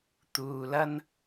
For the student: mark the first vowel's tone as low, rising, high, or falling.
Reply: low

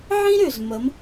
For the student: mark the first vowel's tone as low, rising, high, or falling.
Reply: high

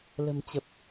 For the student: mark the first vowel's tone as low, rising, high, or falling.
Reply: low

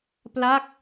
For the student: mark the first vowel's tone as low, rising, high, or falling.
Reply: falling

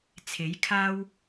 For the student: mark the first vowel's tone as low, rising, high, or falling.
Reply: rising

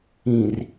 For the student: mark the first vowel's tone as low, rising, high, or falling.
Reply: low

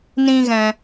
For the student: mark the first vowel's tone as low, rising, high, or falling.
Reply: high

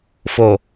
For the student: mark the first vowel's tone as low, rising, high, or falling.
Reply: low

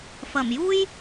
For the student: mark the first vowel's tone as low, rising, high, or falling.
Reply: low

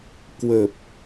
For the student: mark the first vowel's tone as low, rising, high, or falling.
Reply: low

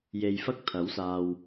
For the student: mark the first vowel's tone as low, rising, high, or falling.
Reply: low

